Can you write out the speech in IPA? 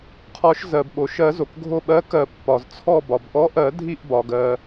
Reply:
qʰɔ˨˩˦ʃzɜ˩bɓo˩ʃɜ˨˩˦ zo˩kɡʱo˧˩ɓɜ˨˥kɜ˨˩˦ pːɒ˩z t͡sʰɔ˧˩ bɒ˩bʔɔ˨˥ ʔɜ˨˩˦ dʱi˧˩ʔbɒ˩ɡɜ˩

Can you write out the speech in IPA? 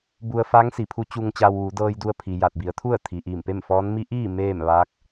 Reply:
bu˧ə̯fa˧˥ŋ si˩˧pʰu˧˥ t͡ɕu˧ŋt͡ɕa˧wʋu˩˧ dɤː˧jdu˧ə̯pʰi˩ ja˧˩t̚bi˩˧ə̯t̪ʰu˥˨ə̯ t̪ʰi˩ʔiː˧˩mpe˥˨mfɔː˧˥n mi˧˥ ʔiː˥˨ meː˥˨mʋaː˧˥k̚

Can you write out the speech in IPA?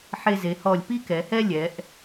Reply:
ħe˧ze˩˧hɔ˧˩lʲ pi˥kɛ˩˧hɛ˥ lʲɛ˩˧ʔ

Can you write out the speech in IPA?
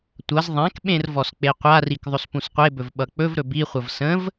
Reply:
tʷʌz ðˤãkɓẽr vɔsk͡peqʷarik ðˤɵspũsqʷebɵv ɓʌk͡pɵvɾɵ biχʷʌv sə̃v

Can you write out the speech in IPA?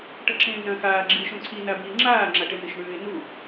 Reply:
ʈɐǁẽːnɐ̃ xaː ɡ͡ǁiːʃõǀʰi nabiːŋ͡ǁaː ŋ͡ǁaʈenɨʃɳʉːɪ̯ nu

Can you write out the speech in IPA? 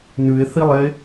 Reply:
nʉe̯θilˠe

